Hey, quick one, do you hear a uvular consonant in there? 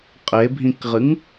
yes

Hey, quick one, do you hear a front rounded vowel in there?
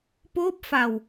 no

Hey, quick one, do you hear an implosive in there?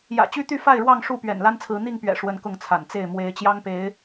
no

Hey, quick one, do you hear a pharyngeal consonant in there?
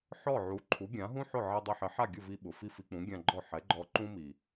yes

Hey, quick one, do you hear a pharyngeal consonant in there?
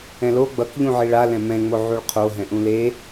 yes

